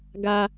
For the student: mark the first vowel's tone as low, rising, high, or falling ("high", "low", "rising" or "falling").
high